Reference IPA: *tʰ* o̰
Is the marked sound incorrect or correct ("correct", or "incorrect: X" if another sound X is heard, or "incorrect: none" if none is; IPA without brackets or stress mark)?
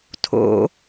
correct